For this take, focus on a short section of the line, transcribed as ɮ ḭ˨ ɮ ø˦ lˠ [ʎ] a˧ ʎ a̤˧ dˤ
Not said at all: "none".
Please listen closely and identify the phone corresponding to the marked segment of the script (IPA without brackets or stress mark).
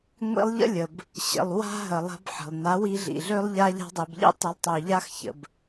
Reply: ʎ